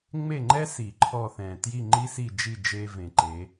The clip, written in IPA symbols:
ŋ͡m e˦˨ ŋ͡ǃ ɛ˦ s i˨˩˦ ǃʰ ɔ˦˨ θ ɛ̃˨˩ t j i˦˨ ŋ͡ǃ i˦ s i˦˨ d͡ʒ i˦˨ d͡ʒ e˦ v ẽ˨˩˦ ǃ e˨˦

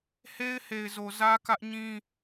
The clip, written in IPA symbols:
h e˦ ɪ̯ h e˨ ɪ̯ z o˨ z ä˦ k ä˦ ʔ ɲ ĩ˦

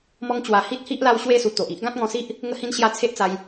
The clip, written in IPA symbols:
m ɔ˧ ŋ t͡ɕ w a˨˩ h i˦ t̚ h i˦ ʔ l a˥˧ w ɕ w e˥˧ s u˨˩ t̪ o˨ ʔ i˦ ʔ ɡ ã˦ t̚ ŋ ɔ̃˧ s i˦ ʔ | ŋ ə˧ h ĩ˧ n ɕ j a˧ t͡sʰ e˦ ʔ t͡s a˧ j

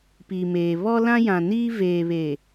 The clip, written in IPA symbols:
p iː˨ m eː˨ β ɔ˦ l ã˦ j ã˨ n iː˦ v eː˨ β e˨

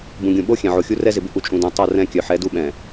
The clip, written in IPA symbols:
b ũ˨ ɡʲ ũ˨ ɓ o˦ xʲ ɛ̃˨ ʕ o˨ xʲ u˦ r ɛ˦ z ɪ˨ b ɪ˦ ʔ u˨ t͡ʃʼ ũ˨ d œ̃˨ tˤ o˦˨ r ɛ̃˦˨ kʲ œ˨ ħ ɛ˨˦ d u˦ ɓ ɛ̃˨

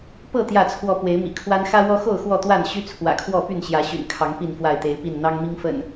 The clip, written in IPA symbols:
p ɤ˥˨ t̪ j ä˥˨ t͡sʰ w ɔ˥˨ p w e˨˦ ɪ̯ m ḭ˨˩ kʰ w a˦ n x ä˦ w ɔ˦ x o˥˨ ʊ̯ x w ɔ˥˨ t̪ w a˥˨ n ɕ y˦ t͡sʰ w ä̰˨˩ kʰ w ɔ˥˨ p y˥˨ n ɕ j ä˨˦ ɕ y̰˨˩ n kʰ ɑ˨˦ ŋ p i˥˨ n f w a˥˨ ɪ̯ t̪ e˨˦ ɪ̯ p i˥˨ n n̪ ɑ˦ ŋ m i˦ ŋ f ə̰˨˩ n

